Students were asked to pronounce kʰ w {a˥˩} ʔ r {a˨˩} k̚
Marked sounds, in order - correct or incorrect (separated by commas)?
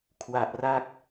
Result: incorrect, incorrect